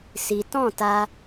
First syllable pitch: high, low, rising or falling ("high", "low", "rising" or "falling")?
high